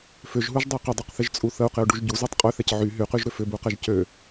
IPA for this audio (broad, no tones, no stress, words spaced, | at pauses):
fʏʒɦuʒdˤø qɪdˤuqθɪʒt͡sʼu θəu̯qɪu̯ɖuʒ ɟuzutˤ qʼøθɛc ʕy ɦyqyʒɾʏ fʏbuqɛʒ cø